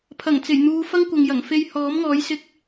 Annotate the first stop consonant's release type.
aspirated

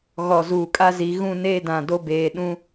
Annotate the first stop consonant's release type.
ejective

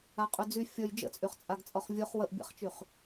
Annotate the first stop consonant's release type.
ejective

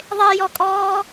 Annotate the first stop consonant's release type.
ejective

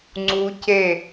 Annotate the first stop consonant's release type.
click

